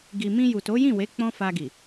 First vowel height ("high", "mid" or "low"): high